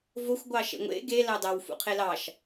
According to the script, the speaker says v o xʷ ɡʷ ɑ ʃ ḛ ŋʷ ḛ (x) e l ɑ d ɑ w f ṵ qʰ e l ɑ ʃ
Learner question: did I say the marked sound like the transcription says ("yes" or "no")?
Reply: no